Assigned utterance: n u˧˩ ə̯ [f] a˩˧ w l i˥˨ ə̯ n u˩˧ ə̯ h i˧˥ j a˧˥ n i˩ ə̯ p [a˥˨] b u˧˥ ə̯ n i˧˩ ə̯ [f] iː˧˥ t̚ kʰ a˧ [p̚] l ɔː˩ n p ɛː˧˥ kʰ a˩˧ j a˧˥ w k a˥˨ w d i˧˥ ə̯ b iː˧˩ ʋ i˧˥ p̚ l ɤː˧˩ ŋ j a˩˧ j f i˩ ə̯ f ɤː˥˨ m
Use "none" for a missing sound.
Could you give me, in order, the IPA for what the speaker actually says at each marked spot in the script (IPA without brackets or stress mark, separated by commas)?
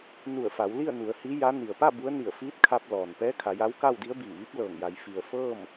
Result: f, a˥˨, f, p̚